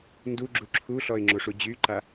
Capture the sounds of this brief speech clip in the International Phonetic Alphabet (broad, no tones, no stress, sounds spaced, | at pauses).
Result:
n d u ɡ͡ǁ u ǁʰ u ɬ ɔ ɪ̯ ŋ͡ǁ o ʂ u d͡ʑ y ǃ a